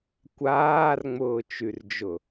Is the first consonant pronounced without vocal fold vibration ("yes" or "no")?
yes